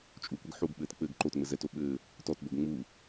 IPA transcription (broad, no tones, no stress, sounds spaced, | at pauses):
t͡ʃʼ u kʷ ɛ ɡ ħ u ɡ ɓ ɘː t k͡p ɘ ɡ ǃ o t ŋ͡m ɘ z ɛ t o ɓ ɘː | t ɔ t b o ɡ ŋ͡m u